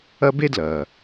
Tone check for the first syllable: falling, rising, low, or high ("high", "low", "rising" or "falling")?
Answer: high